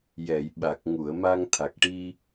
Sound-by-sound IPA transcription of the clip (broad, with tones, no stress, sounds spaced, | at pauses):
j ɛ˨˩˨ j ɓ a˨˩ k̚ ŋ u˨˩˨ ə̯ m a˧ ŋ t̪ʰ a˨˩ k̚ ʈ i˧